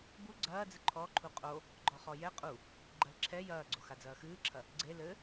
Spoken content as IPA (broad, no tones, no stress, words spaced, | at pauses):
bu ɡ͡ǀɐːd͡zɨ ǃʰɔǃʰu qʼo | ɡ͡ǃɔχɔjɛ qʼu | ɡ͡ǃɐlǁʰɛ jɐːɡ͡ǀox ad͡zɐːxɨːǁʰɐ | ɡ͡ǀe lɘ